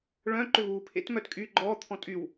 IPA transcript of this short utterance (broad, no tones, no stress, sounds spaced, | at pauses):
ɭ œ̃ ǃ ʏ v uː pʰ ḛ t m œ t kʼ y ɡ͡ǃ ɔː t̪ʰ ɔ̃ tʼ y w